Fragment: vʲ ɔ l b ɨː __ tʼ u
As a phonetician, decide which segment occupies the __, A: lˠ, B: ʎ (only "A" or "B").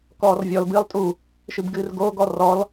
A